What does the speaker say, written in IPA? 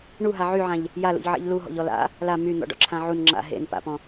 ɳ u ɦ a ʕ y ʕ ã ʎ | j a l ṵ ʎ ʕ ḛ ʎ l u ɦ ɔ̰ ʎ ɔ l a̰ | l a m y n̪ ɔ̰ ɖ ɔ̰ ǁʰ ã ʕ u n ŋ͡ǁ a̰ ɦ ḛ n p a̰ p ɔ̃

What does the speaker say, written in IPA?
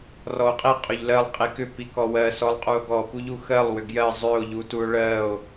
r ɔ o̯ qʼ i qʼ ʏ ʎ l ɜ lˠ qʼ i k ʏ p i k ɔ w ɜ s ɔ lˠ qʼ u o̯ ɡ ɔ p u ʎ u x ɜ lˠ w ʏ ɡ j ɜ zˤ ʏ o̯ ʎ u t u o̯ ɭ ɜ o̯

